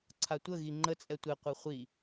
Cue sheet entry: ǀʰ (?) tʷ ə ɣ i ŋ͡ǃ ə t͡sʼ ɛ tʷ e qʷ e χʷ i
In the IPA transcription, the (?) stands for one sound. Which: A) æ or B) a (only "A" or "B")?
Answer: B